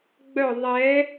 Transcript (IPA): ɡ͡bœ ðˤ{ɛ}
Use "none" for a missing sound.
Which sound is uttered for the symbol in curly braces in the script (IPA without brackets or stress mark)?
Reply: ɛ